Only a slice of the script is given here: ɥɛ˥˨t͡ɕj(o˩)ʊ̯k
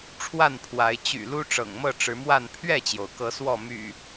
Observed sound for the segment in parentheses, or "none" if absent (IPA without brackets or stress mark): o˩